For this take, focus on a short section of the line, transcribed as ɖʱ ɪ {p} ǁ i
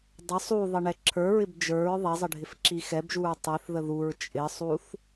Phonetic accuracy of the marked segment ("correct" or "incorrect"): incorrect